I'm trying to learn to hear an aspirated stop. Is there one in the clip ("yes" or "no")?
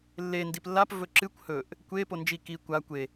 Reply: no